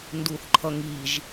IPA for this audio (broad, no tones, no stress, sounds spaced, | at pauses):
n d u θ ǃʰ ʌ ŋ i ʒ